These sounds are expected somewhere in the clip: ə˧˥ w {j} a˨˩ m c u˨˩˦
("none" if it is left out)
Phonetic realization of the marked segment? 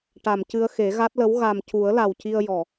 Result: ɣ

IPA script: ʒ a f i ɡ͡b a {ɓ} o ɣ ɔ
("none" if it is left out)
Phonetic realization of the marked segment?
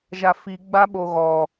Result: ɓ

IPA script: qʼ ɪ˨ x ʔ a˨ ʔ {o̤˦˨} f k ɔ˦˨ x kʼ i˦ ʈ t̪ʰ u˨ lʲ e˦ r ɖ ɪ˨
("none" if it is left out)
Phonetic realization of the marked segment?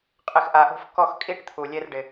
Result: o̤˦˨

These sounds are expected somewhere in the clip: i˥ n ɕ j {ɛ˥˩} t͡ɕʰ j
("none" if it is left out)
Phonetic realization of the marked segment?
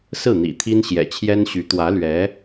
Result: ɛ̰˨˩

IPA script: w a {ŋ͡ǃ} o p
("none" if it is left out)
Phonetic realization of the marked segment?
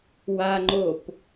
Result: ŋ͡ǃ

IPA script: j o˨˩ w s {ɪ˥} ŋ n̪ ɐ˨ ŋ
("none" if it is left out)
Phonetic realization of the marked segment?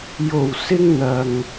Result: ɪ˧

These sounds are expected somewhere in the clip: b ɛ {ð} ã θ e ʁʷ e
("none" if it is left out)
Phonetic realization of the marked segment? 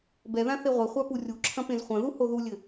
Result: ð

